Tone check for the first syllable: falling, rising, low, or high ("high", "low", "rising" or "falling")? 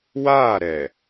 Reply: falling